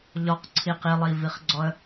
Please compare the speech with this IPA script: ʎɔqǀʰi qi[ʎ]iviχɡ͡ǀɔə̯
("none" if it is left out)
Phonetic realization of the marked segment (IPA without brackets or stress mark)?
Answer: lˠ